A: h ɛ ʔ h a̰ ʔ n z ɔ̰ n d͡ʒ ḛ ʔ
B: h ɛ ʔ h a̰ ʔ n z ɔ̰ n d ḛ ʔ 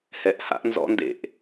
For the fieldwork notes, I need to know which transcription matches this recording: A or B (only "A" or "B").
B